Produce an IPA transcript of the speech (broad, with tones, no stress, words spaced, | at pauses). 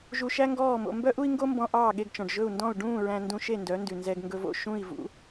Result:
ʒu˧ʃæ˥ŋɡɔː˥˩mo̰˧ mbœ˥ʔu˥i̯ŋɡo˥mbɔ̃˧ ʔɑː˥˩ɠe˧ɡt͡ʃɔ̃˩ɖ ʒɵ˥˩u̯ndɔ̃˥˩u̯ ɖũː˥˩ ɹæ̃˧ndũ˧ʃe˥˩ ndœ˩˥ndʉ˩ nzɛ˧ɡŋɡɵ˧vo̰˥˩ ʃũ˥˩i̯ vṵ˩˥